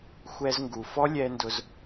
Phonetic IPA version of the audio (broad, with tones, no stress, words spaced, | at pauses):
xʷɛ˧zŋɡu˨fɔ˦ lʲɛː˧ndʊ˧z